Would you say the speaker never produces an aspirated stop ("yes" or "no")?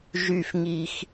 yes